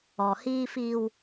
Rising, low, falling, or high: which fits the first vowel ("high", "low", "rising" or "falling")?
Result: low